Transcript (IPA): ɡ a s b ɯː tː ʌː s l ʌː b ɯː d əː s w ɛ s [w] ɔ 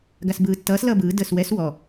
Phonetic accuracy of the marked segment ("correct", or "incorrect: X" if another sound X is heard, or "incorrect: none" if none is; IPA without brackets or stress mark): correct